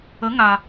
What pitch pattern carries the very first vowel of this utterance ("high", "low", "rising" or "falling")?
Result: rising